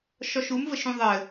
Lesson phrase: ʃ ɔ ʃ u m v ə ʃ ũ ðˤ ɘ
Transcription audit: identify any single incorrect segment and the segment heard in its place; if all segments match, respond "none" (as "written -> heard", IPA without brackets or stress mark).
none